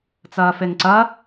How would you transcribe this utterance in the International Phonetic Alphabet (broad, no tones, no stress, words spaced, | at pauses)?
t͡sɐːfeŋǀɐ